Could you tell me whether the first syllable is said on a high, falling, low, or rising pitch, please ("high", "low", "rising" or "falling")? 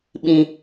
low